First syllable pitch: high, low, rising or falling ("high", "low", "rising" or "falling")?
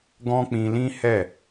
high